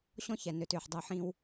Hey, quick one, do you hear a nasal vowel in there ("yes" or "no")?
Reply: yes